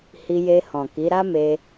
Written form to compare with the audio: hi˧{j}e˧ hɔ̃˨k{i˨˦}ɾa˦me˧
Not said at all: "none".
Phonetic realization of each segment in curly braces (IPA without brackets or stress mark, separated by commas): j, i˨˦